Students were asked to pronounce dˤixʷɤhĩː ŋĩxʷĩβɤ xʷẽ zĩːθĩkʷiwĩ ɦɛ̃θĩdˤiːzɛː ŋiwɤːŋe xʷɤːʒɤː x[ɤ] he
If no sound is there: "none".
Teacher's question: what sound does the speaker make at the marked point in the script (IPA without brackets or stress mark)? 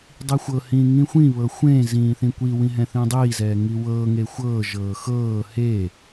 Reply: ɤː